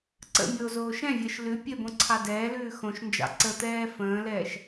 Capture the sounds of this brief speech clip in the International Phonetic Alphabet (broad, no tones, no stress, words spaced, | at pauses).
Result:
ǀə̰ mʲoːzoːʃɛ̃vʲɘːʃ lʉ pʲɘbõ ǀʰɑdɛːlʉː xõʃnd͡ʒɑ̰ ǀət̪ɛː fə̃ːlɛːʃ